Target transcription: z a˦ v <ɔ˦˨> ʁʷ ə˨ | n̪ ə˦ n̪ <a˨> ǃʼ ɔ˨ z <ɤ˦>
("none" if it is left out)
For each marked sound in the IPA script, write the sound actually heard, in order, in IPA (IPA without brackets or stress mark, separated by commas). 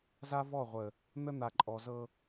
ɔ˦˨, a˨, ɤ˦